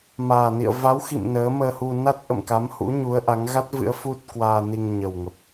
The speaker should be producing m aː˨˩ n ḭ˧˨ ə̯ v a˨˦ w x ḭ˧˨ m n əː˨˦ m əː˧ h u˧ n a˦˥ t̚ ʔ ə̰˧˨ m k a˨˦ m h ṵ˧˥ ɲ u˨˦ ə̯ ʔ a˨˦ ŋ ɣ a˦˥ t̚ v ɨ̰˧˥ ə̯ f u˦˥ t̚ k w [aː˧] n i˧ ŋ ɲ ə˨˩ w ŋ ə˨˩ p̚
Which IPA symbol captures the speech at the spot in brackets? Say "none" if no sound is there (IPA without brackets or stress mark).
aː˧